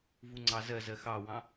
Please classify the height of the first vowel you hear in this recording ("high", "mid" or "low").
high